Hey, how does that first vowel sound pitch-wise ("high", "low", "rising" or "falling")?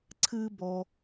high